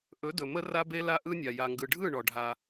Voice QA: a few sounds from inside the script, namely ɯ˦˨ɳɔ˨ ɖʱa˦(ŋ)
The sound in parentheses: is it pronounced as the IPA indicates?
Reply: no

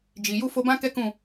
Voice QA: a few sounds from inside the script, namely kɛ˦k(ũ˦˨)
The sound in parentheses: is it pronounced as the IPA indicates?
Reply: yes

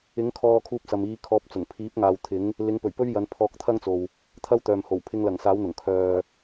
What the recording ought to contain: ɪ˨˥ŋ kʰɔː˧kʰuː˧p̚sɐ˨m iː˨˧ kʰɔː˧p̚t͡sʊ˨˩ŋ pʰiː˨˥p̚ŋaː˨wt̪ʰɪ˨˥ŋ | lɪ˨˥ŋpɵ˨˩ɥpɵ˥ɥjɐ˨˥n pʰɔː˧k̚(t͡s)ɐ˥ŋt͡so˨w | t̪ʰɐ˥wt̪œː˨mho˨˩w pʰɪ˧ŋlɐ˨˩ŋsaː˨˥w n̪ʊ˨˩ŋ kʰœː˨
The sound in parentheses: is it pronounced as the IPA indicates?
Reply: no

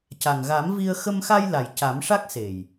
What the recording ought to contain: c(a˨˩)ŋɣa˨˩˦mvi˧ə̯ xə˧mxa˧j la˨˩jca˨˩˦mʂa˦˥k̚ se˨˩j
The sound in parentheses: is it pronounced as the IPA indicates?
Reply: yes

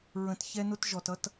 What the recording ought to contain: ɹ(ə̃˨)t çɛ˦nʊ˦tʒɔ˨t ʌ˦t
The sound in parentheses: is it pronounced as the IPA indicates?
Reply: yes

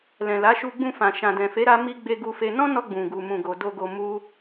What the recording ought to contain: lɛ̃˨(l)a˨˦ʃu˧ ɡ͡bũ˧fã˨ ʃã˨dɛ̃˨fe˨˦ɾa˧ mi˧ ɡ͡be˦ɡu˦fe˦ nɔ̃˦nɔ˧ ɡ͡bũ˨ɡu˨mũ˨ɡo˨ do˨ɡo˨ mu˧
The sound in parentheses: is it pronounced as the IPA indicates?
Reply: yes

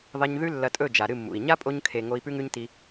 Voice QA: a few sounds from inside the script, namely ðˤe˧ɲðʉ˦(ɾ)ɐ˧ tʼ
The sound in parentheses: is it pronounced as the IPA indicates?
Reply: no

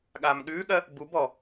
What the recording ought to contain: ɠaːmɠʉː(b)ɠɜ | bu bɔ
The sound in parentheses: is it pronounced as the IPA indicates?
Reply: no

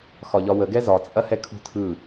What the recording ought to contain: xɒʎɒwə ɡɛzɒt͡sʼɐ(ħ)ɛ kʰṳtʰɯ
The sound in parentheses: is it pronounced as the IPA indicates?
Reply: no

